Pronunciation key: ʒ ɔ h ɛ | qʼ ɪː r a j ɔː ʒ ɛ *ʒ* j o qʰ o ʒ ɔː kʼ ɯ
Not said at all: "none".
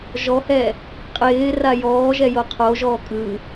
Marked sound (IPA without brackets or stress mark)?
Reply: none